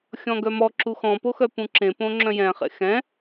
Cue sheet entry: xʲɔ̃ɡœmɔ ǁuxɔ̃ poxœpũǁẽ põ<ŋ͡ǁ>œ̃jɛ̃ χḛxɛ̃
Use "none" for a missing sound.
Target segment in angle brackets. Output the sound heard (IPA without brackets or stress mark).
ŋ͡ǁ